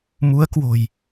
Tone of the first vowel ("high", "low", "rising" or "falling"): rising